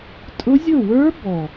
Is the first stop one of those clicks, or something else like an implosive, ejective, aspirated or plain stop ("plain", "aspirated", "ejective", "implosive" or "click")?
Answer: ejective